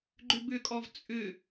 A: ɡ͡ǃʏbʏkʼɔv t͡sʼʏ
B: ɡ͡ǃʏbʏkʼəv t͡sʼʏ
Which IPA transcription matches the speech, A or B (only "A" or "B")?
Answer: A